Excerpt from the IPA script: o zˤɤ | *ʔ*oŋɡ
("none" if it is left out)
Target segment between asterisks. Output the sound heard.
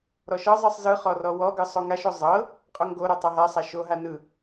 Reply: qʼ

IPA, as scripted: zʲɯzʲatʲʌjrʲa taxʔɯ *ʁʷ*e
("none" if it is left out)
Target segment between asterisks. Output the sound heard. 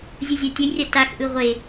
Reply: ʁʷ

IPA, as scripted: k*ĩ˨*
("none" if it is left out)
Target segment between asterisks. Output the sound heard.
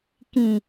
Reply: ĩ˨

